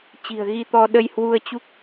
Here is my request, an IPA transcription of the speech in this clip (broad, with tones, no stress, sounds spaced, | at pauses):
t͡ɕ i̤˨˩ ə̯ ɣ i˧ t̪ ɔ˧ ɗ ə˧ j h w u˧ ə̯ t͡ɕ u˦˥ k̚